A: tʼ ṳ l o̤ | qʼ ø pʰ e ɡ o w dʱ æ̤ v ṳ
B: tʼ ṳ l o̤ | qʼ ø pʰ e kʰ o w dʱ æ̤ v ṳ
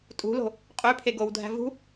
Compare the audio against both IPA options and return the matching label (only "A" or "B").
A